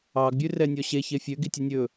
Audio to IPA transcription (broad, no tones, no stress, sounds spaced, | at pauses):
ɑ ɡ bʲ ʉ r ɛ nʲ ɔ ɕ e ç e fʲ ø ɡ i tʲ œ nʲ ɵ